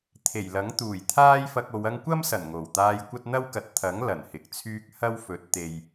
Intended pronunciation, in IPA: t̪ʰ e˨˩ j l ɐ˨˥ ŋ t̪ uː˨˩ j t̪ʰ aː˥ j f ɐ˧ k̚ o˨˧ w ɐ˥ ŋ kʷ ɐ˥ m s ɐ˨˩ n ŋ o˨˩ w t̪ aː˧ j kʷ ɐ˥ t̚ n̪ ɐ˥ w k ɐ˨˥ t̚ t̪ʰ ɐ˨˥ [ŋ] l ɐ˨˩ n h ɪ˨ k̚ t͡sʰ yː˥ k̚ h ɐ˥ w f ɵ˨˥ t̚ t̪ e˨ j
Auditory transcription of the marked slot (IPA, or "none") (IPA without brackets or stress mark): ŋ